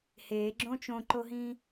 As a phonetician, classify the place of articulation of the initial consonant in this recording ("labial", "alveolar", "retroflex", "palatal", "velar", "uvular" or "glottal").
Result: glottal